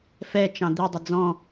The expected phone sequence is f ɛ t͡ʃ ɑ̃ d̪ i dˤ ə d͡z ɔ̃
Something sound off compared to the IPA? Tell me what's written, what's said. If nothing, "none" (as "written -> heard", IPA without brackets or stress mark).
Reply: ə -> ɪ